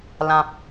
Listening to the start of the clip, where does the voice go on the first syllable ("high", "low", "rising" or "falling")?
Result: low